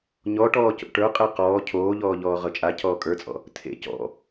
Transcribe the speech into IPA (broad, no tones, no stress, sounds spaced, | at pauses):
ɲ ɔ ʈ ɔː c o̰ ʈ ə˞ qʼ e q ɔː cʰ oː ʎ ɔː ʎ ɔː ʁ ɤ t͡ʃʼ a cʰ ɔː kʼ ə˞ t͡sʼ ɔ̰ | tʰ ḛ c ɔ̰